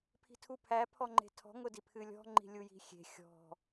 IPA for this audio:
pʰi̤tʰupʰæ pʰɔŋ͡ǃe̤tʰɔ̤ ŋʊdipʰɨlʲɔ̤ ŋ͡ǃi̤lʲuji̤xʲe̤ xʲɔ̤

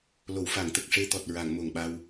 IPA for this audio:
lo˨˩˨wfa˨˩˨ŋt̪ə˨˩k̚ ʂe˧t̪ɔ˨˩t̚ ɹa˨˩˨ŋ mo˨˩ŋɓa˧w

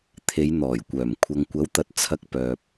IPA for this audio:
t̪ʰe˨˧jn̪ɔː˨˩jkʷœː˨˩m kʷʰɐ˨ŋkʷɐ˨˥wt̪ɐ˨t̚ t͡sʰɐ˧k̚pœː˨p̚

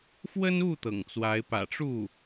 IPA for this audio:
fwə˥nu˥˩ t̪ɤ̰˨˩ŋt͡swa˧˥ɪ̯ pä̰˨˩ʈ͡ʂu˥˩

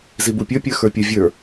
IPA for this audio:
zibupʲə˞ pʲə˞xə˞pʲə vʲə˞

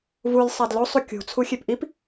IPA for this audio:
vulʲ sˤædlo sˤukʲṳ t͡sʰuxʲepʔip

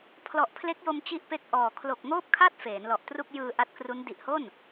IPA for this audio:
pʰlɔ˨˩ʔpʰle˦˥k̚jo˧m t͡ɕi˥˩ʔpe˥˩k̚ʔɔː˨˩ kʰlo˨˩k̚ŋoː˥˩p̚kʰa˥˩t̚ feː˩˦nlɔ˨˩ʔtru˥˩k̚ jɯː˧ ʔa˦˥t̚kru˦˥n di˨˩ʔho˥˩n

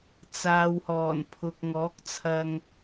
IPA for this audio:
t͡saː˨whɔː˨˩npʰʊ˨k̚ ŋɔː˨˥k̚t͡sʰɐ˧ŋ

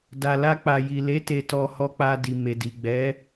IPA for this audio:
da˨la˧ k͡pa˨ji˨le˨˦ te˧tɔ˧ hɔ˧k͡pa˧di˨ me˨di˨ ɡ͡bɛ˨˦

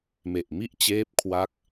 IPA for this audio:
me˨˩ʔmi˥˩ʔ t͡ɕeː˦˥p̚kʰwa˦˥k̚

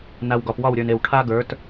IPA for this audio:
na˨wɡɒ˨pwɒ˦˨w ɾʲə˞˨ne˨w ʈʰa˦ ɡə˞˨˦t

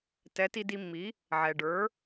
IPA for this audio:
tɛ˩˥ti˧di˧mːi˩˥ | ʕɛ˩ɖə˞˩˥

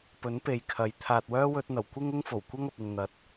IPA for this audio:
pɵ˨˥npe˨jkʰɐ˨˥j t̪ʰaː˨t̚wœː˥wɵ˧t̚n̪ɐ˨˩w kʷɪ˥ŋʊ˥ŋ fo˨˩wkʷɐ˥ŋ ɐ˨p̚ɪ˨ŋ n̪ɐ˨˥t̚

